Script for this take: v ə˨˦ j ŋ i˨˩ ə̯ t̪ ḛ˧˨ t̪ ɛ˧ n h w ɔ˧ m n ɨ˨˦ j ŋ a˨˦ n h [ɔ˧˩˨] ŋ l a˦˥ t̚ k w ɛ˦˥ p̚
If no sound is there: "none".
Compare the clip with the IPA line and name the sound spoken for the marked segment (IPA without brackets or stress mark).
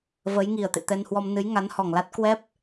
ɔ˨˩